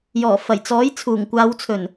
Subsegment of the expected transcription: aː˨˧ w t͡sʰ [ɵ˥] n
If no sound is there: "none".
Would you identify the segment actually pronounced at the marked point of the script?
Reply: ɵ˨˩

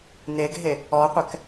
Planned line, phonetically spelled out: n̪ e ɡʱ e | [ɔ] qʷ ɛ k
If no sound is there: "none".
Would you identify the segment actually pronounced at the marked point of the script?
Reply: ɔ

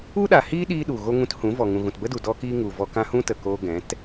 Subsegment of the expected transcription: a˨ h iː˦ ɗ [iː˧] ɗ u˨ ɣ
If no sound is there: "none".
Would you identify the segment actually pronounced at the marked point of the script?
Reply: iː˧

